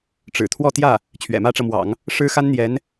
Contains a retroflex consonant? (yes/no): yes